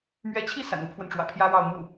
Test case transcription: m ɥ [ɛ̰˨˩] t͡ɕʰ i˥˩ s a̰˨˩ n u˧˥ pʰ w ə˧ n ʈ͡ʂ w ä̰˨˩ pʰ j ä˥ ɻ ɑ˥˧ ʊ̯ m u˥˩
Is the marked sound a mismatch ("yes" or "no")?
yes